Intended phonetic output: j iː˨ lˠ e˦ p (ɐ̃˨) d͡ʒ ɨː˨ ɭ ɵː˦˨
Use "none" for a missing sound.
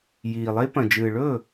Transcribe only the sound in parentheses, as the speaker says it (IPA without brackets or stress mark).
ɐ̃˨